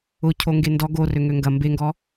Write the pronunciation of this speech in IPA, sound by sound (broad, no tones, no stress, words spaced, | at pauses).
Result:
ʊ cʰoŋɡendɔ ɡo røŋøŋɡɐ mbeŋɡɔ